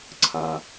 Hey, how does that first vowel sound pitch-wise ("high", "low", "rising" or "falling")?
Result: low